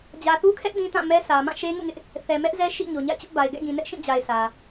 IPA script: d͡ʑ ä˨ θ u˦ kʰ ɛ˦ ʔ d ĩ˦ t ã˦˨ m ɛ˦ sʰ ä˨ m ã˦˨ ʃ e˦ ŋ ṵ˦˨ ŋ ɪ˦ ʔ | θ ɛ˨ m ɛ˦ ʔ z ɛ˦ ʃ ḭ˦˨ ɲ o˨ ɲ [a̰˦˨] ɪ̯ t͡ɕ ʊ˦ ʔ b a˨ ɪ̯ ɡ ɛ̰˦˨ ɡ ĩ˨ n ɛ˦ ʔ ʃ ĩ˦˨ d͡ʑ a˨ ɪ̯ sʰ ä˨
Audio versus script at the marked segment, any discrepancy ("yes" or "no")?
no